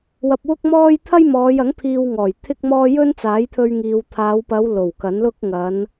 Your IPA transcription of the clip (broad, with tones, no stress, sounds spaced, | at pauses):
w ɐ˧ p̚ w ʊ˥ k̚ m ɔː˥ j t̪ʰ ɐ˥ j m ɔː˨˧ j ɐ˨˥ ŋ pʰ iː˧ w ŋ ɔː˨˩ j t̪ʰ ɪ˥ k̚ m ɔː˥ j ɵ˥ n t͡s aː˨˥ j t̪ʰ ɵ˧ ɥ ŋ iː˨ w t̪ʰ aː˨˧ w p ɐ˨˧ w l o˨˩ w k ɐ˨˥ n l ʊ˥ k̚ ŋ ɐ˨˧ n